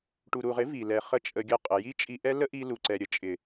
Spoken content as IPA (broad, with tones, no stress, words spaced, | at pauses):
ʈu˨ɾu˨ʁɪ˨˦ vi˨ lɛ˨ χə˦t͡ʃʼə˧ɡʲə˦˨ qʼə˨ji˦t͡ʃʼi˧ʔɛ˦ lə˦ʔi˧lu˨ ǀɛ˧ɾʲə˨ t͡ʃʼɪ˨